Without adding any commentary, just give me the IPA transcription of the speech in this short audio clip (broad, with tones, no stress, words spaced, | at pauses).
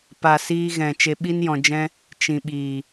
pa˨ siː˧ɣɛ̃˨ t͡ʃe˧ɓi˦njɔ̃˧d͡ʒɛ̃˦ | t͡ʃĩ˨ɓiː˨